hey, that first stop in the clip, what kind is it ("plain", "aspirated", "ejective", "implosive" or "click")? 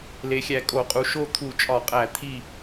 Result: ejective